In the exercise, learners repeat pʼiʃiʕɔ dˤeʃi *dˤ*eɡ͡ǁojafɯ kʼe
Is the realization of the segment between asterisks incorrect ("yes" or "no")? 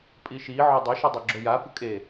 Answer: no